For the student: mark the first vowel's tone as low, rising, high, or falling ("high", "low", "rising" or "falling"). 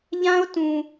high